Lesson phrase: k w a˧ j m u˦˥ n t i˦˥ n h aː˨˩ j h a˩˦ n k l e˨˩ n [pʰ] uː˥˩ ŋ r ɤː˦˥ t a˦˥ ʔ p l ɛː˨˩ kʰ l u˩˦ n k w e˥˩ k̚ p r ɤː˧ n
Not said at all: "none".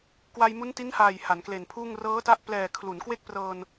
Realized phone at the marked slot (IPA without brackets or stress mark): pʰ